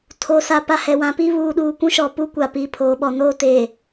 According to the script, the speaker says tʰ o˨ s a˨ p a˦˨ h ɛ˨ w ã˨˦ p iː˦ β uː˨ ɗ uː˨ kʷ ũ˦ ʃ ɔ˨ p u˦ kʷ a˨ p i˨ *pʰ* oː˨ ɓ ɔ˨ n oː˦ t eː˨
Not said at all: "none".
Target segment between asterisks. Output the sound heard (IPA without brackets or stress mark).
pʰ